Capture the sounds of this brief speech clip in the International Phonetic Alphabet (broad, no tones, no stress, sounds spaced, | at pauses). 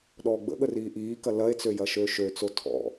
ɗ ɔː ɡ͡b ə̰ ɠ ə r iː ʔ iː k ɐ l ɐ e̯ t͡s ø j ɐ ʃ øː ʃ ø t͡s o tʰ ɔ̰